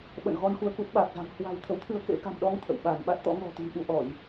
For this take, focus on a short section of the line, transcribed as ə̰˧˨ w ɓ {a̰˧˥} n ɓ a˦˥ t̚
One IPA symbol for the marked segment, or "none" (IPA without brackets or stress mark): a˧˩